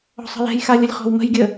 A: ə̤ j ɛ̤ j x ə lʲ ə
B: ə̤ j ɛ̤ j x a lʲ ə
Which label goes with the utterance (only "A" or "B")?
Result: B